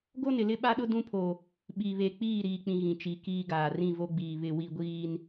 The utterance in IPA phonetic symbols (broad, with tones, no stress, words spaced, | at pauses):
ɡo˦nɪ˨lɪ˦ ɓa˦ɗʊ˦ dũ˦pʰo˨ | ɓi˨βe˨k͡piː˦˨ ɾiː˨k͡pĩ˨ ɣĩ˨t͡ʃi˨˦kiː˦ɡaː˨ rĩ˦˨vo˦ɡ͡biː˨ βɪ˨wi˨ɡʷiː˨n